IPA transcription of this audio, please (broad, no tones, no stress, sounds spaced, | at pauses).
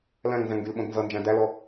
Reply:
l æ̃ ŋ n z æ̃ ŋ ɡ y l ɓ õ d n z ʌ n d͡ʒ æ̃ d æ l ɔ